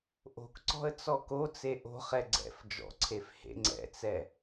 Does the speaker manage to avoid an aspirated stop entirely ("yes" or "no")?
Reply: no